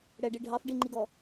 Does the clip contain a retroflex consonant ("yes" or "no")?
yes